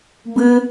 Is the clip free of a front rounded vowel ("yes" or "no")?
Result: yes